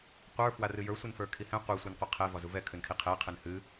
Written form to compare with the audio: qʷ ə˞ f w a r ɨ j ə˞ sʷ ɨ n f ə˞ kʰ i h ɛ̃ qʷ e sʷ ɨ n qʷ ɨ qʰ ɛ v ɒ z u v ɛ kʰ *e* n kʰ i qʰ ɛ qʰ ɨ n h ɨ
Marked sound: incorrect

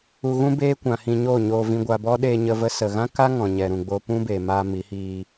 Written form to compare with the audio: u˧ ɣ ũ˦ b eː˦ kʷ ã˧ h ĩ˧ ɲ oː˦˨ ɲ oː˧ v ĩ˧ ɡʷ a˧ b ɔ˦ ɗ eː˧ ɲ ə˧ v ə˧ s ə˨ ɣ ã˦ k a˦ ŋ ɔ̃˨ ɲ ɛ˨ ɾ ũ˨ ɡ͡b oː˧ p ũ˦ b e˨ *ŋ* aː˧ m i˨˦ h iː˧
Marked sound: incorrect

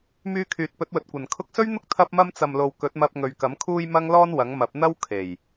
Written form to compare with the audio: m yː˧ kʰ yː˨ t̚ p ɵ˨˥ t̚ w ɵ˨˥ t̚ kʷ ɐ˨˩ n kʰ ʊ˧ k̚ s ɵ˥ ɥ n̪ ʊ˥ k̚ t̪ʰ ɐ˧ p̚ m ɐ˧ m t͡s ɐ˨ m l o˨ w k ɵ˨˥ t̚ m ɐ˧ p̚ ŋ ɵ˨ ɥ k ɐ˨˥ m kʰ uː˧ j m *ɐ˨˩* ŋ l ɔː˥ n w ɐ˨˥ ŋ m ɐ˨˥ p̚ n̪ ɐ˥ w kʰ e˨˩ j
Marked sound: incorrect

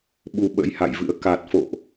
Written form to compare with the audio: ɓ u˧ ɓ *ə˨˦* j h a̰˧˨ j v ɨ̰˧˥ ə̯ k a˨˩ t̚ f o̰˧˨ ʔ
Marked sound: incorrect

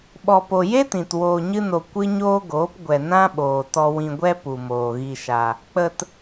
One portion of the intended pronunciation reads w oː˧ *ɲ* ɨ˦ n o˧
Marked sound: correct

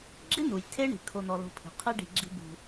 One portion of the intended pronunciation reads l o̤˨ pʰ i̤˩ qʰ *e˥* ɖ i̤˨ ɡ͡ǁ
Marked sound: correct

